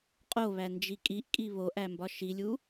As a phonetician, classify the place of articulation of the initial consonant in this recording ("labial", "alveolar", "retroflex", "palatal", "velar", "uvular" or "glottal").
uvular